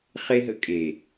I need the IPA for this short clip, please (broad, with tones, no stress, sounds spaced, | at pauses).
χ e˦ ɦ ə̰˦ kʼ e˨